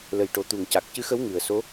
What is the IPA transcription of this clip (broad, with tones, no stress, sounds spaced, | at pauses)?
l ə˨˩ j ʈ o˨˩ t̪ u˨˩ ŋ c a˨˩ k̚ c ɨ˧˥ x ə˧˥ w ŋ ɨ˨˩˨ ə̯ s o˧˥